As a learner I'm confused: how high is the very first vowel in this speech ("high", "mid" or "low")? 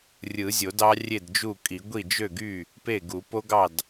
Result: high